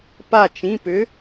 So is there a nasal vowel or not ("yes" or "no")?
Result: yes